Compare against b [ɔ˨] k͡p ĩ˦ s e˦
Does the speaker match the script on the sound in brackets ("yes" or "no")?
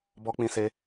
no